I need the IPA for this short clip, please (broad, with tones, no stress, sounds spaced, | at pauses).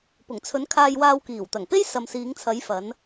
p ʊ˨˩ ŋ t͡sʰ ɵ˨˧ n kʰ aː˧ j w aː˧ w k iː˨˩ w t̪ ɐ˨˩ ŋ p e˥ j s ɐ˨ m s iː˨˧ ŋ t͡sʰ ɐ˨˧ j f ɐ˨˧ n